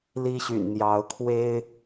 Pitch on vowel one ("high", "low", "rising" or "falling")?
high